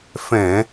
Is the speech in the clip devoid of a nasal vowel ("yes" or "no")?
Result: no